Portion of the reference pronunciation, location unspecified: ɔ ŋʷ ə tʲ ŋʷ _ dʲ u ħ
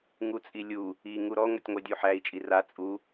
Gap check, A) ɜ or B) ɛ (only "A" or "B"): A